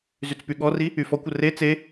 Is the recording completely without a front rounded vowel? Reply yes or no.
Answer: no